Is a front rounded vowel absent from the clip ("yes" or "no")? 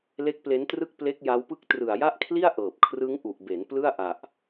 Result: yes